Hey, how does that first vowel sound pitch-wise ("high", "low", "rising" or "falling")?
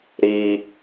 high